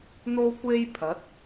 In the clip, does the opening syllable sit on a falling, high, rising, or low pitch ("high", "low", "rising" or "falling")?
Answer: high